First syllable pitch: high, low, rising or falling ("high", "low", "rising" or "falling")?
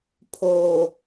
low